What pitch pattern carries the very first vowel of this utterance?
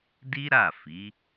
high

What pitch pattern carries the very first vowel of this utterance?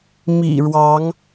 low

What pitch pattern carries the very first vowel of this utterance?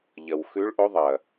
low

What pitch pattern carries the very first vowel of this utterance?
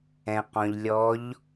low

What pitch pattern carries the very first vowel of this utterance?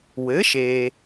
rising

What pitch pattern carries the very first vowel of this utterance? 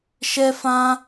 high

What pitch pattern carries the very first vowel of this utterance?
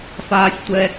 high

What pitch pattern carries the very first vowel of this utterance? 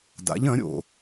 rising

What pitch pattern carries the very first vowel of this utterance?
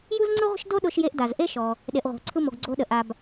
high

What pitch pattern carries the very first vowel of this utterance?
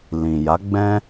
low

